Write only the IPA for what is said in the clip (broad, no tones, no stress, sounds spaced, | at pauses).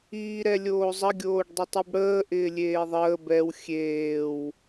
iː ɾ ɛ lʲ oː zˤ ə ɡʲ oː ɖ dˤ ɪ tˤ i b ɽ əː ʔ ɪː lʲ eː ðˤ əː b ɛ w xʲ eː w